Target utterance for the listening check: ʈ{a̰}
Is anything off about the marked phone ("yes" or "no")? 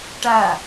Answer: yes